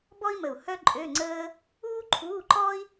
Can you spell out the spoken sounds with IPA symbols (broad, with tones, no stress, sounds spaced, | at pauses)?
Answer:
b ɔ˥ i̯ m ə˧˩ u̯ h œ˥ ǃʼ ø˧˥˧ ŋ͡ǀ əː˥ | uː˥ ǃʰ uː˧˥˧ ǃ ɔ˥ i̯